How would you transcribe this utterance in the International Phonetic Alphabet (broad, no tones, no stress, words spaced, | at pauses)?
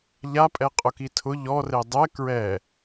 ʎapʼɛ qʼʊkitʰʊ ʎɔre dˤɛ kɹɛ